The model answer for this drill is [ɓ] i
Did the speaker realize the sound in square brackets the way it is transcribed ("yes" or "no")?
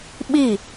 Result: yes